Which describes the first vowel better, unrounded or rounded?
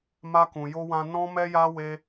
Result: unrounded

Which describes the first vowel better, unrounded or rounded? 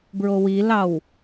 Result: rounded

